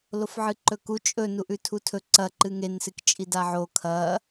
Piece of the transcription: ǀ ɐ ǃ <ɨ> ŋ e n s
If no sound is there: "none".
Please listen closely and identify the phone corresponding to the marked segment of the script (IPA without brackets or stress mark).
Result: ɨ